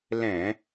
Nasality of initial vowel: nasal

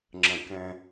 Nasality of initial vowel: nasal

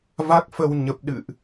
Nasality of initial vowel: oral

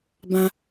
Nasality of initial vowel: nasal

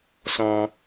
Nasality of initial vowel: nasal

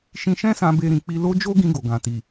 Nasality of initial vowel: nasal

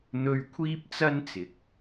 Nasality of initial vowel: oral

